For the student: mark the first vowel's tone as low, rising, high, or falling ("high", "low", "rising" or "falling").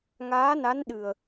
rising